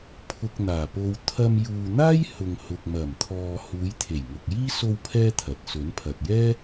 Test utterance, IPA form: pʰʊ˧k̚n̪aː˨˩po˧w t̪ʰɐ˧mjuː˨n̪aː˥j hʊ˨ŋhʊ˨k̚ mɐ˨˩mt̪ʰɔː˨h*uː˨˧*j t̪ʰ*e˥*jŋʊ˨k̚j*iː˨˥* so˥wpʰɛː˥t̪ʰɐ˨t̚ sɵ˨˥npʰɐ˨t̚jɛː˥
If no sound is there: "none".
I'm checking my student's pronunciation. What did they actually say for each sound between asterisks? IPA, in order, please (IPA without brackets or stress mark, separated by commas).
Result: uː˨˧, e˨˩, iː˥